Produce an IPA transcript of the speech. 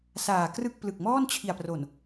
saː˨˩krɯ˦˥k̚plɯ˨˩k̚mɔː˥˩n t͡ɕʰi˨˩a̯pro˨˩n

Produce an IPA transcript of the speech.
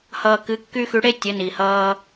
hʌː˨kɨ˨˦kːy˦ xy˨˦ɽe˦ tʲə˨˦ni˨hʌː˦

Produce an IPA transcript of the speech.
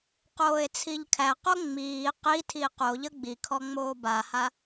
qoːe̯t͡sʰiʎkʰæqo ŋ͡miː qitʰi qoʎə ɡ͡bikʰɔ ŋ͡moːbaha

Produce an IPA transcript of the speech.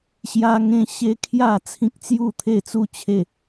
ɕja˦ŋẽ˦ ɕe˦kʰja˥˧ t͡sʰĩ˦k̚t͡sju˥˧ t̪ʰe˥˧t͡su˦t͡ɕʰe˥˧

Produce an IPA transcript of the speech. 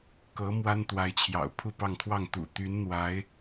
kɤ˧˥ mwa˥nt̪wa˧˥ɪ̯t͡ɕʰjɑ̰˨˩ʊ̯ pʰu˥˧pɑ˥˧ŋkʰwɑ˥˩ŋ t̪ṵ˨˩ t̪y˧˥nn̪wa˧˥ɪ̯

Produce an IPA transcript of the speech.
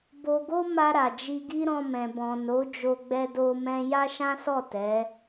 bo˧ɡo˦ ma˧ɾa˨ d͡ʒi˧ɡi˦ɾɔ̃˧mɛ̃˨ bɔ̃˨no˨˦ d͡ʒo˧ɡ͡bɛ˧do˧mɛ̃˧ ja˦ʃã˦sɔ˦˨ tɛ˨˦

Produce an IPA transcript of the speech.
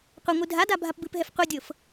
qʷəŋʷɨ dʱada bʱapbɨpɦɛf qʷɨdʲɤf

